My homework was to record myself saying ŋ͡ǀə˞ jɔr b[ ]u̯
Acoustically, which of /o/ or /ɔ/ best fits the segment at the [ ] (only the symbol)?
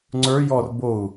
o